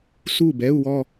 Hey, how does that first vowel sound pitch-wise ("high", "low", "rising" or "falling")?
falling